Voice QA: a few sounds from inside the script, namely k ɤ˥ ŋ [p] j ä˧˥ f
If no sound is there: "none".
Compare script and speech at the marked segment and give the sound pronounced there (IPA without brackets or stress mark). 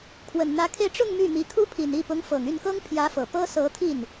pʰ